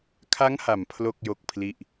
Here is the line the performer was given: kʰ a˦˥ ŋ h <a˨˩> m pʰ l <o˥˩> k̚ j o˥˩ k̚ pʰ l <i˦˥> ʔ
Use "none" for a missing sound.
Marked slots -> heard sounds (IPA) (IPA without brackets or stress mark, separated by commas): a˨˩, o˥˩, i˥˩